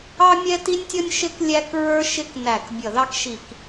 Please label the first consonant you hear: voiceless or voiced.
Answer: voiced